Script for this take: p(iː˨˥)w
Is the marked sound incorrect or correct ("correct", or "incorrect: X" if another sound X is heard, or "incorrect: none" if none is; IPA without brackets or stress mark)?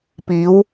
correct